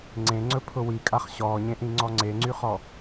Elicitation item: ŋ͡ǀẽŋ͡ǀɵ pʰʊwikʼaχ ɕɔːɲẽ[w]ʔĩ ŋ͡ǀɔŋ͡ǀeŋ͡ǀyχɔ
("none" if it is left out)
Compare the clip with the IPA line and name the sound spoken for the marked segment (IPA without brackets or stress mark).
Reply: none